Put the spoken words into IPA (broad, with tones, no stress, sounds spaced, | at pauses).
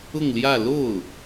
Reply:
ʊ˥˧ ŋ l j ä˥˧ l o˥˩ ʊ̯